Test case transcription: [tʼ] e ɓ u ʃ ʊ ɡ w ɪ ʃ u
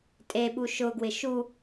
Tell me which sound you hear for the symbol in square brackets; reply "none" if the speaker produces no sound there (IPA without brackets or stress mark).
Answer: tʼ